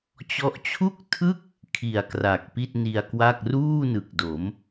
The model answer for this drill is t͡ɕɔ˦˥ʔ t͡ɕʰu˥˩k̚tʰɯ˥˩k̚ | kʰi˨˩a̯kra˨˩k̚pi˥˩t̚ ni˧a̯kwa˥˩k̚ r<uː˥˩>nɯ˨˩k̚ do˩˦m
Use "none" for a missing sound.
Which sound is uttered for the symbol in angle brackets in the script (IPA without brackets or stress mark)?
uː˥˩